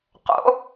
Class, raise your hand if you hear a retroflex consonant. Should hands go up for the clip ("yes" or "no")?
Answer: no